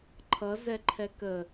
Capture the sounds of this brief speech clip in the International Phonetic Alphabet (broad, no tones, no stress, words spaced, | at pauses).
ǃʰʌzɛǃʰɛ kə